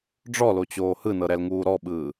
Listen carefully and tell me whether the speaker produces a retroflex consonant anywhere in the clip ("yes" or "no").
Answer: yes